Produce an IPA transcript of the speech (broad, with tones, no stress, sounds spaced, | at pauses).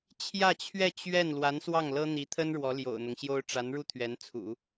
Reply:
t͡ɕʰ j ä˥˧ t͡ɕʰ ɥ ɛ˥˧ t͡ɕ ɥ ɛ˥˩ n l w a˧˥ n s w ɑ˥˩ ŋ l ɤ˥ n̪ i˧˥ t̪ʰ ə˥ n ɻ w ɔ˧˥ l j o̰˨˩ ʊ̯ n̪ ʊ˦ ŋ ɕ j o˥ ʊ̯ ʈ͡ʂ a˧˥ n ɻ u˥˩ t̪ʰ ɥ ɛ˧˥ n t͡sʰ ṵ˨˩˦